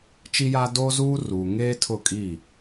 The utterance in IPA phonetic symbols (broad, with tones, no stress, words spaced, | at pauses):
t͡ʃi˦ja˦ doː˦zuː˦ ruː˨ŋeː˦tʰʊ˦˨kʼi˦˨